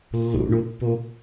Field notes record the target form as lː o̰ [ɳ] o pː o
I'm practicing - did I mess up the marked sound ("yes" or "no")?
no